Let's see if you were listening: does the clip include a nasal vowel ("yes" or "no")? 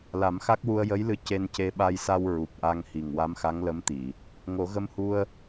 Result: no